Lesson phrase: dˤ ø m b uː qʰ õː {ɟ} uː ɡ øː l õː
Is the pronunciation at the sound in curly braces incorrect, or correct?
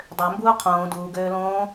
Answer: incorrect